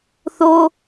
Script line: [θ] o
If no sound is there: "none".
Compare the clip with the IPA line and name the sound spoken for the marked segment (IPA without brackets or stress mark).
θ